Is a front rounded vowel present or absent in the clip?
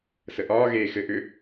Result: present